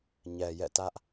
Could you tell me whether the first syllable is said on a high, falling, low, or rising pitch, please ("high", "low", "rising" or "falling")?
low